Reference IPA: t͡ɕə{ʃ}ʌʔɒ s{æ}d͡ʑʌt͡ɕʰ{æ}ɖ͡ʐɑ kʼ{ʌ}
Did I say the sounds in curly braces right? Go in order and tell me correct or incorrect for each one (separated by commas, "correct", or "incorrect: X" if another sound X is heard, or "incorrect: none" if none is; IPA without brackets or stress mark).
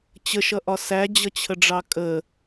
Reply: correct, correct, incorrect: ə, incorrect: ə